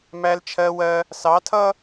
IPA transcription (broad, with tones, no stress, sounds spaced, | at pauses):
m æ˨ l t͡ʃʰ ɜ˨ w ɜ˦ | s ɑ˨˦ tʰ ʌ˦